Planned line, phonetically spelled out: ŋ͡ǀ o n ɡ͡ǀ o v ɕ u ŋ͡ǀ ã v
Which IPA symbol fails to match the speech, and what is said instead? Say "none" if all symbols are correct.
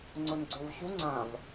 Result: none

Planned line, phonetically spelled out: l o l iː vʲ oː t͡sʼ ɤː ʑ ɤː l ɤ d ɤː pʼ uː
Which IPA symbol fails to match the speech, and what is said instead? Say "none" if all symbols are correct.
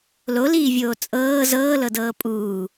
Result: ʑ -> z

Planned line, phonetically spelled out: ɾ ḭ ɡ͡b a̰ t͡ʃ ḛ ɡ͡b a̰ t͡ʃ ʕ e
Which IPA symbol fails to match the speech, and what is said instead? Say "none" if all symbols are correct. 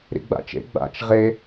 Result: ʕ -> ʁ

